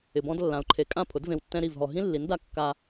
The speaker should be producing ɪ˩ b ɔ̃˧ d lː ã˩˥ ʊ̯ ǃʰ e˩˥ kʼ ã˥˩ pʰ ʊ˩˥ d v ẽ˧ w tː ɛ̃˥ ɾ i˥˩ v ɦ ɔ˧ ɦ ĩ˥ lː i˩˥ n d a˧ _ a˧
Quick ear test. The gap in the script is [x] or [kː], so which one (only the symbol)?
kː